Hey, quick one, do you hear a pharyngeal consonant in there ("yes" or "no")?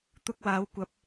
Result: no